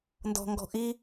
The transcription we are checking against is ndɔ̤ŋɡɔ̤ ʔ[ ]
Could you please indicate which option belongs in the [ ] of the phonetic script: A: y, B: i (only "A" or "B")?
B